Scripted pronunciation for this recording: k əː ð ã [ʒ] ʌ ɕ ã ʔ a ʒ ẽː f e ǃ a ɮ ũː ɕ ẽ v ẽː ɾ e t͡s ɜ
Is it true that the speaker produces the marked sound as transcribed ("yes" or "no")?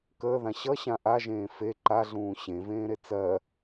no